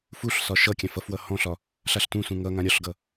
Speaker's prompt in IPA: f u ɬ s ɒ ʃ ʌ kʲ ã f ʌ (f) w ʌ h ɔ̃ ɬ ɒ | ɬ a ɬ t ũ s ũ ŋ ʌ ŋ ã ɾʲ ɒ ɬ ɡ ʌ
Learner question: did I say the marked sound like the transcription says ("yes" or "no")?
yes